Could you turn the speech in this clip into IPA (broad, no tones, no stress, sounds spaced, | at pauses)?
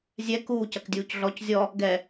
zʲ ɛ k uː c ɐ k dʲ uː c ɮ ɔ c zʲ ɔ | ɡ ɛ